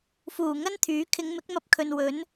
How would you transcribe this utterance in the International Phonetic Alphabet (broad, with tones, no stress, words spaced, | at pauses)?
fuː˨˩ŋɐ˥nt̪ʰyː˨˥ kʰɪ˨˧ŋmɪ˨˥k̚mɐ˧p̚ kʰɵ˨nwɵ˨˥n